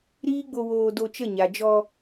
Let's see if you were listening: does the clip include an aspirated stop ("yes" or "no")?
no